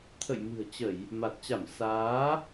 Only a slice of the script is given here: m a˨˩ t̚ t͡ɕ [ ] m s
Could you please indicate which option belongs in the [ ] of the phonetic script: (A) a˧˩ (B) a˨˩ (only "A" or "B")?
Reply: A